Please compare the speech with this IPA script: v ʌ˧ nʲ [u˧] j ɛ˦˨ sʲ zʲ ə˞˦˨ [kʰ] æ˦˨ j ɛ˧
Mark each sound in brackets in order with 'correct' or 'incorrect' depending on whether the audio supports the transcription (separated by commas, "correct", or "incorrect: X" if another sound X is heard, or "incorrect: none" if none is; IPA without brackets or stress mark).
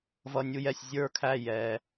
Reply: correct, correct